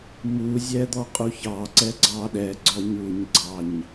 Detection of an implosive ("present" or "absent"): present